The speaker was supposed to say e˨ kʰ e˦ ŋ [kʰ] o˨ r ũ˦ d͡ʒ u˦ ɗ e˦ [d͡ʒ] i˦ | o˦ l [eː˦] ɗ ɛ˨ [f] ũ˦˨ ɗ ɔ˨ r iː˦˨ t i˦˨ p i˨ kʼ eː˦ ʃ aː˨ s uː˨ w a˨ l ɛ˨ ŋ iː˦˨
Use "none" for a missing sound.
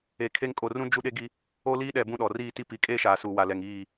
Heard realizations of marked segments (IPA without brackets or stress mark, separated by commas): kʼ, ɡ, iː˦, b